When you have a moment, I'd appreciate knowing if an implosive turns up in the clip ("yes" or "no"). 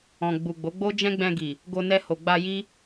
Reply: no